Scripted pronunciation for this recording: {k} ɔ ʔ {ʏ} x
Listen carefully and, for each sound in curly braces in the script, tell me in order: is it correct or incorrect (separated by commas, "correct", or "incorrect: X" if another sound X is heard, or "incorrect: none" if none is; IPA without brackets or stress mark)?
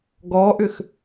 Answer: incorrect: ɡ, correct